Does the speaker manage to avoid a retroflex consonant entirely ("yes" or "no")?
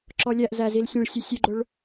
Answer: no